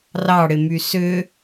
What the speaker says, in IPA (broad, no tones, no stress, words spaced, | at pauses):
rɑɽɪmy sʏ